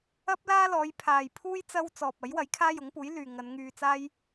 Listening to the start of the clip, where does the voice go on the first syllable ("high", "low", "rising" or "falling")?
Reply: high